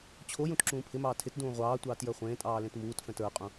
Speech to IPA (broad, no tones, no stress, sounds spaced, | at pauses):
t͡ɕʰ o j ũ t ǁ ũː pʰ ɪ m ɑː tʰ ɪ t d ũː ʁʷ ɑː tʷ ɑː t j ə˞ χʷ ẽː tʼ ɑː l ẽ t m uː t f ɛ̃ t ə˞ qʼ ũ